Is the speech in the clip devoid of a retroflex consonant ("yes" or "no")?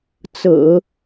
yes